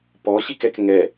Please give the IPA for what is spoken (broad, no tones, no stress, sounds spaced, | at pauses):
p ɔ ɕ i k ɛ k ŋ ɛ